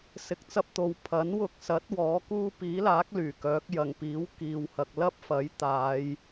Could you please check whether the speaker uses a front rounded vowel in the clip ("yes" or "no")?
yes